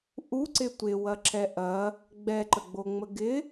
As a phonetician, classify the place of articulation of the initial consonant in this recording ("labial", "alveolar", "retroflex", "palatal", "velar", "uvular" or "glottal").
glottal